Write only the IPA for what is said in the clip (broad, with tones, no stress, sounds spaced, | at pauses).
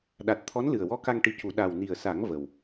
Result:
ɗ a˨˩ t̚ t̪ʰ ɔ˧˥ n l ɨ˨˩ ə̯ w ɔ˧˥ k a˧ ŋ ʈ i˧ c u˨˩˦ ɗ a˨˩ w n i˨˩ ə̯ s a˨˩˦ ŋ v ə˨˩ w